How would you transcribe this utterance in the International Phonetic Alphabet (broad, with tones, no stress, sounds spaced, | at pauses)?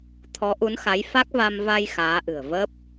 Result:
t̪ʰ ɔ˨˦ ʔ u˨˦ n x a˨˦ j f a˦˥ k̚ v a˧ m v a˧ j x aː˨˦ ʔ ɨ̤˨˩ ə̯ v ə˦˥ p̚